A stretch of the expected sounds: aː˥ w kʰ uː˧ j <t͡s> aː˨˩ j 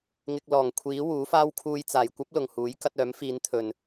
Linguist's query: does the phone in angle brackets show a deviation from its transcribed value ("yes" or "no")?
no